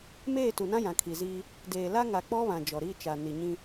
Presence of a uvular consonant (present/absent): absent